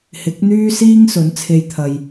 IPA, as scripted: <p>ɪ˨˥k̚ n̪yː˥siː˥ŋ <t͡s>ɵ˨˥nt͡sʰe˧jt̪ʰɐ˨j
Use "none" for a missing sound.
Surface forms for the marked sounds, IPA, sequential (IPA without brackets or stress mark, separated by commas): h, s